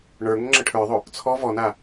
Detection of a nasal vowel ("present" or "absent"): absent